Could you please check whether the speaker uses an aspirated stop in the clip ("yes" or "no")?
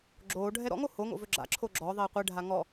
yes